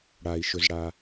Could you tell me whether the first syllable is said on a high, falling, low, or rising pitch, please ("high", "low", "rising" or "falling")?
low